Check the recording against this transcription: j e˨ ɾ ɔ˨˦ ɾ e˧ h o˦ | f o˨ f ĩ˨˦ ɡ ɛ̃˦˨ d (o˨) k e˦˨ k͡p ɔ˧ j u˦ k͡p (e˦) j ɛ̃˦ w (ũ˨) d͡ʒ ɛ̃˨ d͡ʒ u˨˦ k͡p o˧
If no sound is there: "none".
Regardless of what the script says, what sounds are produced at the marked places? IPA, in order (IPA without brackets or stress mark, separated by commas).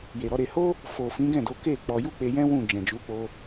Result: o˨˦, e˧, ũ˦˨